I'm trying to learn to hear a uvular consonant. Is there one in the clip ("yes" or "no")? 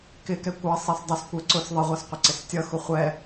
yes